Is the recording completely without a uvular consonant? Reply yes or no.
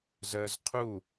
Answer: no